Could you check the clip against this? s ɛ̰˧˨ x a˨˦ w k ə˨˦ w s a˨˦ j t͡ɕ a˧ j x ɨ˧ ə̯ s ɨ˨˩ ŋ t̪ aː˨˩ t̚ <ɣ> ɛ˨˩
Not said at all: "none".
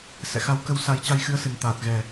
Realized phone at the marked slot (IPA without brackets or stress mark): ɣ